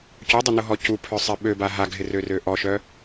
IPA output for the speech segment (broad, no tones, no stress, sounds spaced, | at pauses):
c ʊ dˤ ʊ n ʊ ɦ ɔ c u pʰ œ sˤ ɪ ɓ ø b a ɦ a ɡʱ ɪ r ø r ø ʔ ɔ ʃ œ